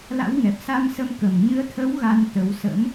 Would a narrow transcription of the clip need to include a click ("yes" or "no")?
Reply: no